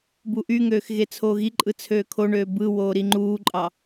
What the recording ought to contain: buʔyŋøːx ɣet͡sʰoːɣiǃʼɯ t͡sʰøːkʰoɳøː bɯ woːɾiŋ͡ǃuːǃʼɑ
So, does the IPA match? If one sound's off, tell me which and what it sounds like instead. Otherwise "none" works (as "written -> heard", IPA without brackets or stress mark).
none